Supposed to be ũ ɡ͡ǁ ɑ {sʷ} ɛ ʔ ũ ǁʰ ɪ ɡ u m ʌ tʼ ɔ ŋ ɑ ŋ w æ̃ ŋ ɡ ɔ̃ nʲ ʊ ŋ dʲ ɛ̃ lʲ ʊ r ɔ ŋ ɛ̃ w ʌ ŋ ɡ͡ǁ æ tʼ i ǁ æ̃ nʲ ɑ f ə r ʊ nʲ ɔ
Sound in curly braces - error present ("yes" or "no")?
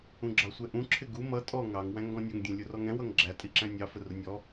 no